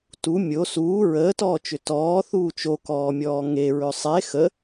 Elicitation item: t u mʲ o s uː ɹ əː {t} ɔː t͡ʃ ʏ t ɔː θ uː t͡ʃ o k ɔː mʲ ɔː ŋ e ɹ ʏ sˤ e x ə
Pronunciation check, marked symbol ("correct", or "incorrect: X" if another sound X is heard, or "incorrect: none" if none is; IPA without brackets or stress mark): correct